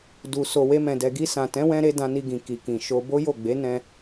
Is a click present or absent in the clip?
absent